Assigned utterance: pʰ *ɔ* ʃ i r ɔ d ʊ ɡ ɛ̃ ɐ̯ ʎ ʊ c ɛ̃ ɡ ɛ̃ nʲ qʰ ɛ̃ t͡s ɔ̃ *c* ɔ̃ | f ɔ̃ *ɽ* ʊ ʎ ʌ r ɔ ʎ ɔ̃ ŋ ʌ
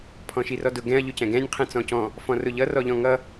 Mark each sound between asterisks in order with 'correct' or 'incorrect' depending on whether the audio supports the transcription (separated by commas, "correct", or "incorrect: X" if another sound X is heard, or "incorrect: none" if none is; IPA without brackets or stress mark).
incorrect: ɔ̃, correct, incorrect: r